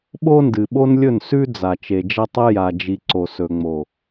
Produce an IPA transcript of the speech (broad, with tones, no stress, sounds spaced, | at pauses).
ɓ o˦ n d ɨ˨ ɓ o˦ n lʲ ɵ˦˨ n s ʉ˦ d͡z a˨ t͡ʃ e˨ d͡ʒ ɐ˦ tˤ ɨ˦ j a˨ d͡ʒ i˨ ǀ o˨ s ɵ˨ ŋ͡m o˨